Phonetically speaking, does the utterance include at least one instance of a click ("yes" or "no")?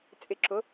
yes